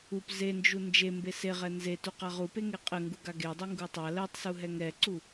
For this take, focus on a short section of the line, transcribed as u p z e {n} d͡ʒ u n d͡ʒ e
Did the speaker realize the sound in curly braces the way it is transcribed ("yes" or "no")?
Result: yes